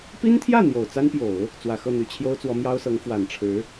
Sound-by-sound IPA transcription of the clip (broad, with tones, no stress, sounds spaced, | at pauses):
p i˥ n t̪ʰ j ä˥˩ n̪ j o˨˩ ʊ̯ t͡s a˥ n p j o˨˩˦ ʊ̯ | t͡s w ä˨˩ x ɤ˥˩ n̪ y˨˩ t͡ɕʰ j o˥ ʊ̯ t͡s w ɔ˧˥ m j ɑ˥ ʊ̯ s ɤ˧˥ ŋ f w a˨˩ n ʈ͡ʂʰ ɻ̩˧˥